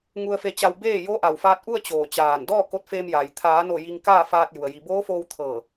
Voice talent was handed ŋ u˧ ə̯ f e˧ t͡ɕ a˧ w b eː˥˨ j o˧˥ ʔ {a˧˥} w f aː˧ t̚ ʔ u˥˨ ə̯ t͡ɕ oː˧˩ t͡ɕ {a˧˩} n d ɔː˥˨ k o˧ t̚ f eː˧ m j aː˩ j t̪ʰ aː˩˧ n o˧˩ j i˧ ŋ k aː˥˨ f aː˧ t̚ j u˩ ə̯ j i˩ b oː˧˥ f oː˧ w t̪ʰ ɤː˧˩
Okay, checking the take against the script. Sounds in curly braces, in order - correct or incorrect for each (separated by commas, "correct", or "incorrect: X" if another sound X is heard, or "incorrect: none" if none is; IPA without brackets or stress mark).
incorrect: a˩, incorrect: aː˧˩